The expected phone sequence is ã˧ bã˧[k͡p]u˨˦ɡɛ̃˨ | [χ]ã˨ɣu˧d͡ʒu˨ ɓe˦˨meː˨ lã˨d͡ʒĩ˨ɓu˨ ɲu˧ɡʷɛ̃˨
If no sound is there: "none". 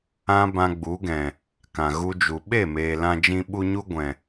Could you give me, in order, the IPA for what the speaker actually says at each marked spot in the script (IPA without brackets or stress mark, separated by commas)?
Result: ɡ͡b, k